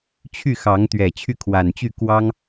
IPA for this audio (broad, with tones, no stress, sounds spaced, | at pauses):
t͡ɕʰ y˥˨ x ɑ˨˦ ŋ t̪ ɥ ɛ˨˩ t͡ɕʰ y˥˨ kʰ w a˨˩ n t͡ɕ y˥˨ k w ɑ˦ ŋ